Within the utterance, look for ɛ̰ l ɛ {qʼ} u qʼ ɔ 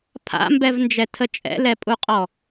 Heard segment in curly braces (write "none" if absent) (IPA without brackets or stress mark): pʼ